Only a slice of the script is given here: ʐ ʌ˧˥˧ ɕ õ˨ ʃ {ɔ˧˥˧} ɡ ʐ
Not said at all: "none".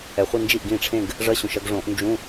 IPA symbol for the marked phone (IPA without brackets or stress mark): ʌ˧˥˧